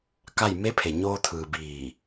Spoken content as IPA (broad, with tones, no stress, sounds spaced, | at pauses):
k a˥˨ j m e˧˥ pʰ e˩ ɲ oː˧ t̪ʰ ɯː˩ b iː˧˩